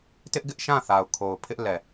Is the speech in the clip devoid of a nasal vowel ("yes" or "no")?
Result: no